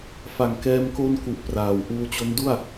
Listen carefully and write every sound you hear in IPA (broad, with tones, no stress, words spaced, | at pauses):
fa˨˩ŋkɛː˧m ko˧n ku˨˩ʔ praː˨˩w ʔuː˧t͡ɕo˦˥ndu˥˩a̯